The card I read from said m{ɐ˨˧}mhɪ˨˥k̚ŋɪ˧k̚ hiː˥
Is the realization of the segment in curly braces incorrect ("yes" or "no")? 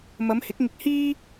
no